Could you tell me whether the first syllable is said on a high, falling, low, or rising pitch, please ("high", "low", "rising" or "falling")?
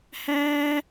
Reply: high